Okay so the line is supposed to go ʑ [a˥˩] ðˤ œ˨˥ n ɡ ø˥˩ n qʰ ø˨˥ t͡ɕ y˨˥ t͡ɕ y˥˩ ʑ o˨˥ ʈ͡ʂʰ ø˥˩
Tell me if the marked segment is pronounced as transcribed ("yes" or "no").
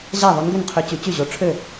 yes